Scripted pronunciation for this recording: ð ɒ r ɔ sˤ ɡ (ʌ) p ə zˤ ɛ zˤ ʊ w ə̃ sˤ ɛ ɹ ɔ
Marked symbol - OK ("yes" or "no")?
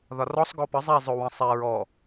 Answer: no